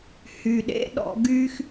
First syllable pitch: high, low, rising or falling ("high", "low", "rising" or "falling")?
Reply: low